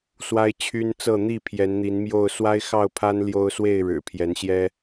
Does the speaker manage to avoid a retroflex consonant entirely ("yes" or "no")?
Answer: no